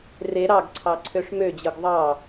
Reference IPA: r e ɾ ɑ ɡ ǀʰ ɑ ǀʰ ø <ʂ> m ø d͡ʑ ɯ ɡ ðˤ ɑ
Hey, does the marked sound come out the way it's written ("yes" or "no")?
yes